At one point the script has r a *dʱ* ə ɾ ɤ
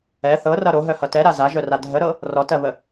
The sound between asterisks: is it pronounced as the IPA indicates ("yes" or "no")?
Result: yes